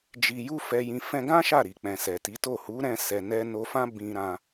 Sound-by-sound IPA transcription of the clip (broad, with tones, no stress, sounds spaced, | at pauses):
d͡ʒ i˧ j u˦ f ɛ˧ j ĩ˧ f ɛ̃˧ ɡ ã˦ ʃ a˦˨ ɾ i˨ k͡p ɛ̃˨ s ɛ˨ t i˨˦ t o˦˨ h u˨˦ ɾ ɛ̃˧ s ɛ˨ n ɛ˧ n o˧ f ã˦ b ĩ˧ ɾ ã˧